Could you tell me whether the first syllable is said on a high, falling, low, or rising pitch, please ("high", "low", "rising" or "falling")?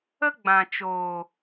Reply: high